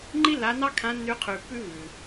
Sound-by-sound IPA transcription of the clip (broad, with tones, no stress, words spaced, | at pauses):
ŋ͡ǃi˥lːa˧˥ nɑ˥kʰã˧˥nːʉ˧˥ qʰʉː˧pːʉː˥vʉː˩